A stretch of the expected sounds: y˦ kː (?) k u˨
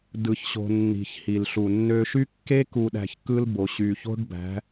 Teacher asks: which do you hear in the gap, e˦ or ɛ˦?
e˦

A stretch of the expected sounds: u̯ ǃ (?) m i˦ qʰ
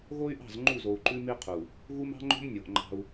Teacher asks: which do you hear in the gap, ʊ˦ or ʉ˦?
ʉ˦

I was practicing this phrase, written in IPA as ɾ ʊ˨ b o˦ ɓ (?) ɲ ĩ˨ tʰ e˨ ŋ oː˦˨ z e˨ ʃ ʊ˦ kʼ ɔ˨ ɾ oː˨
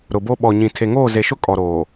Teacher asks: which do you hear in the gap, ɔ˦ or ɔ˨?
ɔ˨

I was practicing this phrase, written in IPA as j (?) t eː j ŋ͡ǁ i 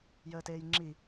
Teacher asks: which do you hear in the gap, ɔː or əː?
əː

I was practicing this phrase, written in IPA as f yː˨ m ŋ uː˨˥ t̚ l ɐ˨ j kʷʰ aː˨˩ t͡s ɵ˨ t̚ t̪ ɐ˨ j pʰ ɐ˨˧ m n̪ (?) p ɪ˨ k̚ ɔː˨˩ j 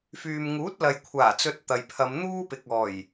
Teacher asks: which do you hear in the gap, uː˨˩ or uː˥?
uː˥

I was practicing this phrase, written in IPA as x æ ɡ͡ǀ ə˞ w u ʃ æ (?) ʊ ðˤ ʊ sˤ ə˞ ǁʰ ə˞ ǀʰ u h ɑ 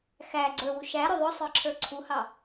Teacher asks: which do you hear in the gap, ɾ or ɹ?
ɾ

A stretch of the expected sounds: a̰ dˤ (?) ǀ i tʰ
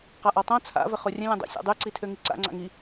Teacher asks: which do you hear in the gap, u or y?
y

